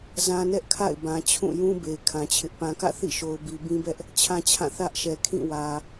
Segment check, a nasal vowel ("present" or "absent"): present